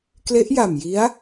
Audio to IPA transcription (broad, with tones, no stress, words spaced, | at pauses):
kle˦˥ʔja˨˩mji˦˥a̯